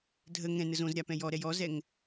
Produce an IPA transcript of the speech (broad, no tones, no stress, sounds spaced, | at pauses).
dʱ ə ŋ ɛ̃ n ə z õ z ɾʲ a p ɛ̃ j ɔ ɾ ɛ j ɔ z ɛ ŋ